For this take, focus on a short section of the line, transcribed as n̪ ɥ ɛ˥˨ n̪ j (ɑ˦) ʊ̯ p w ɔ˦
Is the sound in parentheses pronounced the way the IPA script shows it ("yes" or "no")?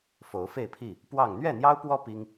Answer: yes